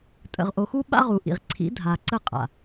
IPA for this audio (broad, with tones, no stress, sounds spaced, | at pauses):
tʼ ə̰˨ ʁ ʔ o˨ x u˦ ɓ a̰˦ ʁ u˨ ʔ ḭ˨ ʁ ǀʰ ḭ˨˦ dʱ a˨ ǀ ə˦˨ qʼ a̰˨